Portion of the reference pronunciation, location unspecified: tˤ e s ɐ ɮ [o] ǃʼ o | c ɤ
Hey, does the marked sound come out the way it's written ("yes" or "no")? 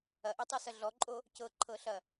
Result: no